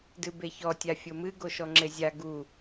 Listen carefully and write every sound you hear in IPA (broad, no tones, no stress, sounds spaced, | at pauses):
d ɨ b e ç ɔ tʲ a fʲ o m ɨ ɡ o ʃ ɔ ŋ͡ǁ e zʲ a ɡ u